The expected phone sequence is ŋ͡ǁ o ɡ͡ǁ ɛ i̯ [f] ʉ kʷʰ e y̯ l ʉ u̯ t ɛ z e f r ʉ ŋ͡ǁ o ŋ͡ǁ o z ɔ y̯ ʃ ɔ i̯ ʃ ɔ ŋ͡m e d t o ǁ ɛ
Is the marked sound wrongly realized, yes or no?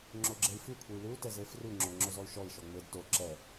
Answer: no